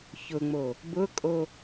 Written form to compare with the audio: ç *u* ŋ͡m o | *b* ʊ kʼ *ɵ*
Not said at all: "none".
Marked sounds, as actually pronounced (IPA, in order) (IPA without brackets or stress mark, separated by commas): ʊ, b, o